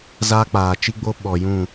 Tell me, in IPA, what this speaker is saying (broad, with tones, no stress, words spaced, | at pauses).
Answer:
zaː˦k͡paː˨t͡ʃi˦ɡ͡bo˦ ɓɔ˨jũ˦˨